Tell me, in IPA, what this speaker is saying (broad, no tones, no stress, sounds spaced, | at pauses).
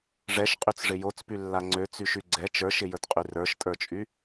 ʐ ɛ ʃ qʼ y t͡s ʐ ɪ j o t͡s p y lː a ŋ͡ǀ ø t͡s y ʃ y ɡ͡ǀ ɛ t͡ʃ ə˞ ʃ ɪ j ə˞ t qʼ y r ə˞ ʃ tʼ ə˞ t͡ʃʼ y